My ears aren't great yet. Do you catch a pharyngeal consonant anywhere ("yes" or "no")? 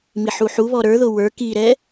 yes